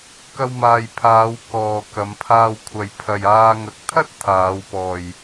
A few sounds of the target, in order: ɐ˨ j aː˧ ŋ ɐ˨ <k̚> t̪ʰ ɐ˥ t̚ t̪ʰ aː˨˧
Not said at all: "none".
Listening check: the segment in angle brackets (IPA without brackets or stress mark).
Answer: k̚